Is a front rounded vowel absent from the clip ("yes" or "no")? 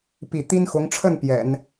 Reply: yes